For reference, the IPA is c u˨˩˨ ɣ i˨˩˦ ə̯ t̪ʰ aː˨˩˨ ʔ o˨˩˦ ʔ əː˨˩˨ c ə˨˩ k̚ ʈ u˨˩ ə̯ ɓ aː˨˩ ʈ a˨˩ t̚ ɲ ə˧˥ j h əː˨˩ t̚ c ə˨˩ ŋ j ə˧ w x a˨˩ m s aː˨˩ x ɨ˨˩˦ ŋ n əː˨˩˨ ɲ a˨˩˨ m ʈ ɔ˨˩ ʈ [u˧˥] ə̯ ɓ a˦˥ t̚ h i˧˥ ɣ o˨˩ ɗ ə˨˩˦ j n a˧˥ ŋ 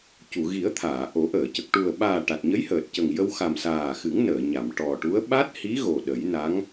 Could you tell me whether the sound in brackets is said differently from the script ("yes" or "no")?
no